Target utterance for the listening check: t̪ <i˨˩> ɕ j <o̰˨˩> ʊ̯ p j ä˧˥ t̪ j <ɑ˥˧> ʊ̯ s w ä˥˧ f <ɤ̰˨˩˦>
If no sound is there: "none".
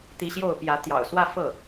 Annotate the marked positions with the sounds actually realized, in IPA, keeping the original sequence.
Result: i˧˥, o˥˩, ɑ̰˨˩, ɤ˥˩

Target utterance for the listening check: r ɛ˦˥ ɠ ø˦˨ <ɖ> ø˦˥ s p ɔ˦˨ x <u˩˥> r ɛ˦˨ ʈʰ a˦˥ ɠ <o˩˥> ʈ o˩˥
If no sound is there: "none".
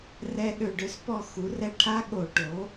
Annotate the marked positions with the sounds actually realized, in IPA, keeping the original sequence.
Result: ɖ, u˩˥, o˧˩˧

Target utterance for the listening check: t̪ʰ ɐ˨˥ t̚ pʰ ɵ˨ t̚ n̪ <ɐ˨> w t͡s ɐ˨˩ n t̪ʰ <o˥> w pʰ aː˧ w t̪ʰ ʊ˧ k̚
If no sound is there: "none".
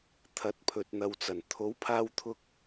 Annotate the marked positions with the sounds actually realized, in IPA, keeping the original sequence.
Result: ɐ˨, o˨˥

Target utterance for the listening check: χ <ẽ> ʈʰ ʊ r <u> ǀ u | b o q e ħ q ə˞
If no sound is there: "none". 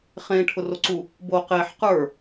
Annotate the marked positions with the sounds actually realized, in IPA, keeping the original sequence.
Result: ẽ, o

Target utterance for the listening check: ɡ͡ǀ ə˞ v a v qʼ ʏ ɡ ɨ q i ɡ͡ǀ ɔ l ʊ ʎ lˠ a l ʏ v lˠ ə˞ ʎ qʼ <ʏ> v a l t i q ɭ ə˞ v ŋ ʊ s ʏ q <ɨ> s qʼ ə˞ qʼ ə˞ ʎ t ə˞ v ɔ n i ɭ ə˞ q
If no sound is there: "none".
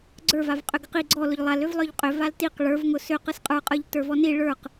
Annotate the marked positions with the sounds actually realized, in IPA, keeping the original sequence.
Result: ʏ, ɨ

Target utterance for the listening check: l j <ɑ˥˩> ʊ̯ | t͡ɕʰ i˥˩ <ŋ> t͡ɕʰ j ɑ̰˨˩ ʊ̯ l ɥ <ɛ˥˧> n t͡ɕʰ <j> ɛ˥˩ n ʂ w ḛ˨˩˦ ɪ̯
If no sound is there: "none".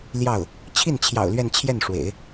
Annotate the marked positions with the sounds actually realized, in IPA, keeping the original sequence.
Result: ɑ˥˩, n, ɛ˥˧, j

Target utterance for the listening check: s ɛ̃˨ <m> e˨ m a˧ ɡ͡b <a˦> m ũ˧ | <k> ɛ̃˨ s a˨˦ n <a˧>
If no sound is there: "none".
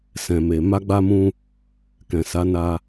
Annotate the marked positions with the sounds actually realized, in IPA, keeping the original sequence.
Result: m, a˧, k, a˧

